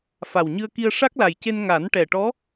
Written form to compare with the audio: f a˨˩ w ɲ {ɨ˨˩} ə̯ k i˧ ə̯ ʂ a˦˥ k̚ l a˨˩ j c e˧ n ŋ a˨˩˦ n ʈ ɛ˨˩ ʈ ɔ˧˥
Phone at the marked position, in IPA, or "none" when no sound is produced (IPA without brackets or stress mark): ɨ˧